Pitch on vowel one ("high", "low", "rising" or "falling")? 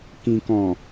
low